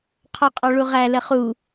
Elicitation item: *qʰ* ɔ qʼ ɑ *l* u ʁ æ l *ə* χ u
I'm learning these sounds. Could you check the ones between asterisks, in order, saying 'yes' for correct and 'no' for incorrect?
yes, no, yes

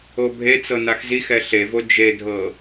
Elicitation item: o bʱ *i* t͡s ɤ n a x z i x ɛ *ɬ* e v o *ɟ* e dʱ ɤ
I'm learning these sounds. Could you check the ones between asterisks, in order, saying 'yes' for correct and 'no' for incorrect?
no, yes, no

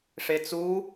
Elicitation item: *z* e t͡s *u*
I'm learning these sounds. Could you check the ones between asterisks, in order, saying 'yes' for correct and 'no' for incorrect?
no, yes

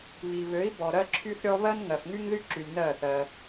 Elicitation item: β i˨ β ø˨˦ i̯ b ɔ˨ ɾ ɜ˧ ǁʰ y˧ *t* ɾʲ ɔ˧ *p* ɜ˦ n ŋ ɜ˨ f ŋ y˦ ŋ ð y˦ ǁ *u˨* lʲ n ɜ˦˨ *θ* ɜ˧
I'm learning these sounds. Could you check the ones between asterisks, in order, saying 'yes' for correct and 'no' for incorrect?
no, no, no, yes

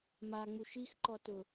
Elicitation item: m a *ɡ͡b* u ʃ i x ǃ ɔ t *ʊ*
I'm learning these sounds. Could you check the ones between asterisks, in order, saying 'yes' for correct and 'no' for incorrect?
no, yes

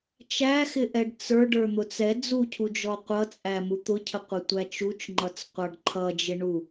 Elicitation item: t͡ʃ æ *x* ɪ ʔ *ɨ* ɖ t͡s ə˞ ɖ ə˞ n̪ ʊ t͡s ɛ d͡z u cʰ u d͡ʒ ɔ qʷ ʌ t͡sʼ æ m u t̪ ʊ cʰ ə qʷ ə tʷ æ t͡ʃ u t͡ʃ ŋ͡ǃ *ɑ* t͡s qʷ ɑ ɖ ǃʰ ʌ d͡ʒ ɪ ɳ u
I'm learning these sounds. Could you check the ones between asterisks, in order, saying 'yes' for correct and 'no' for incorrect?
yes, no, no

